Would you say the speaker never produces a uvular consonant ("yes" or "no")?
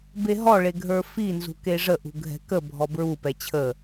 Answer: yes